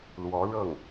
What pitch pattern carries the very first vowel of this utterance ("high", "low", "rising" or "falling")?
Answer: rising